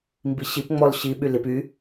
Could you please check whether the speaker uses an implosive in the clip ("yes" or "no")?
yes